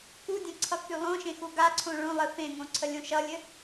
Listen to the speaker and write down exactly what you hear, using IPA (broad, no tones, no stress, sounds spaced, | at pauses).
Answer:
k u dʲ ə̃ ǀʰ ʌ k y lˠ õ ʃ ẽ x u ɡ a ǀʰ õ ɭ õ lˠ ɘ f ẽ ŋ õ ǀʰ ə lʲ õ ʃ ʌ lʲ ɘ